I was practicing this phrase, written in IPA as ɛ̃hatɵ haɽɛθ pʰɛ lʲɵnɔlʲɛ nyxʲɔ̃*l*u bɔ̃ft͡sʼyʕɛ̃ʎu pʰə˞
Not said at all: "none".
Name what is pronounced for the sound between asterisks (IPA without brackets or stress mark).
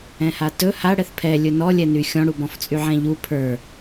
ɽ